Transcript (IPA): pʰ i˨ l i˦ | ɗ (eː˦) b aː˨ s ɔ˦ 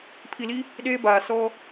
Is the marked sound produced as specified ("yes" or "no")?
yes